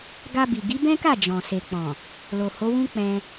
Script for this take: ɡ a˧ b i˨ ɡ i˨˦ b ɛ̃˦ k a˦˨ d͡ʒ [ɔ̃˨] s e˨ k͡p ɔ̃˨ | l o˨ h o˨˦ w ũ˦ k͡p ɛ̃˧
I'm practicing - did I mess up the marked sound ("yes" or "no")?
no